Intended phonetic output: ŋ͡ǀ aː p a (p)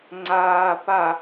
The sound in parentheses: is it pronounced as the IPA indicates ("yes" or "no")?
no